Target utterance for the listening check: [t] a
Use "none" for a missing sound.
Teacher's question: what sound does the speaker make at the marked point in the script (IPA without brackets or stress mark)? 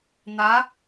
n̪